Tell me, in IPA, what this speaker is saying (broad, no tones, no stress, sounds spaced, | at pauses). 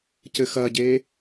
c ɘ x ɐ ɟ eː